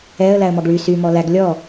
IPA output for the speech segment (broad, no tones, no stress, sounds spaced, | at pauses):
ɛ ə̯ l æ ə̯ m ɔ ɡ ɭ y s y m ɔ l æ ɡ lʲ ɔ